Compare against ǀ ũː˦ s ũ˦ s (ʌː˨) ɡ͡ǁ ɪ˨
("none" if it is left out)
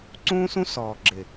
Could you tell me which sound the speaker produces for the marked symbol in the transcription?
ɔː˨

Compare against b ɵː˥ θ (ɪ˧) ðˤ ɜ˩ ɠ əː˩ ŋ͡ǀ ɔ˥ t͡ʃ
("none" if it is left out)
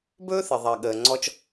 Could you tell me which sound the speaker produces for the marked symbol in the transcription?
ɪ˩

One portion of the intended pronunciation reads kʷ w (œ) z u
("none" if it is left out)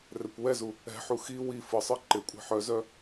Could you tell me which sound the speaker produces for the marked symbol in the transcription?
ɛ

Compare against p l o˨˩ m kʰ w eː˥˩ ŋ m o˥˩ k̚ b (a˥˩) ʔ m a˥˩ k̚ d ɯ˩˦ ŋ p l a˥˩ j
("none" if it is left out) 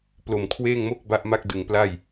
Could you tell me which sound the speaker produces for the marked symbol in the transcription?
a˥˩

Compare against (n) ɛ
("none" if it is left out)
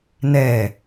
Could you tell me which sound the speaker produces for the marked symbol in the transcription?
n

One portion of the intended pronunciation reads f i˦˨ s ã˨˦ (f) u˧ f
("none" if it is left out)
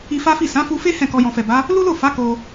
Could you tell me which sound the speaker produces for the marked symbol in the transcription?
f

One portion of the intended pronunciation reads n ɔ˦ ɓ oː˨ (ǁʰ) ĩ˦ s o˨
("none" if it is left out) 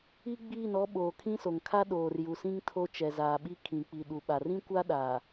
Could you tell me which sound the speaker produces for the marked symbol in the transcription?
kʰ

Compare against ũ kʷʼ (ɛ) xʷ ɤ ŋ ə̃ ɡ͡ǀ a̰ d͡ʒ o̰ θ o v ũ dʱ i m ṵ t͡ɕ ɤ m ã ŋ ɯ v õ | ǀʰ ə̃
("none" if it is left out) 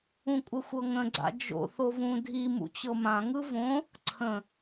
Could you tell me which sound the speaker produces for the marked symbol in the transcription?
ə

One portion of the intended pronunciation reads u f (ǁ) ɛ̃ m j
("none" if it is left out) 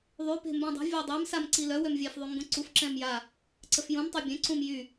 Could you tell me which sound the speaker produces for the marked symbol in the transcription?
ǁ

